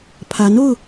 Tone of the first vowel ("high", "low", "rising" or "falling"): rising